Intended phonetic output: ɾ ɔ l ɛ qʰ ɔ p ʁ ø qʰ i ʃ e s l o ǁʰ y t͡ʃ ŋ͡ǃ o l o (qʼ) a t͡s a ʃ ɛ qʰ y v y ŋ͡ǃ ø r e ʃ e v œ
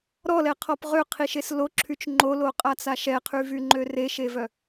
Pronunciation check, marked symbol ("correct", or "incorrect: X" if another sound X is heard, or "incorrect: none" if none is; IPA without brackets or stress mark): correct